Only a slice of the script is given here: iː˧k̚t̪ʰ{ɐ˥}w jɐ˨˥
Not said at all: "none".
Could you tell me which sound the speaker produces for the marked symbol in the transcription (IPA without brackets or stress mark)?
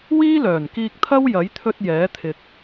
ɐ˥